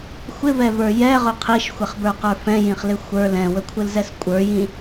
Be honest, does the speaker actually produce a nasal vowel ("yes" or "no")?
yes